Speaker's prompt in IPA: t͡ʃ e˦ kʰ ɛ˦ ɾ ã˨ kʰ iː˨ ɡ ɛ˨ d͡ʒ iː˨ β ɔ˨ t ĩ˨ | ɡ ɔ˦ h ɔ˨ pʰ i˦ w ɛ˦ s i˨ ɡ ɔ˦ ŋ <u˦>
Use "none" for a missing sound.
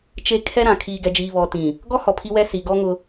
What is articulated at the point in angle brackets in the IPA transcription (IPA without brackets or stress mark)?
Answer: ʊ˦